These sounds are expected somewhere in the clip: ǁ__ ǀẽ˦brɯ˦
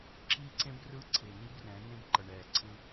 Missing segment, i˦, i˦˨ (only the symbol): i˦